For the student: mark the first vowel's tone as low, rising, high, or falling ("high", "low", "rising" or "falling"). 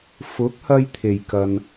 rising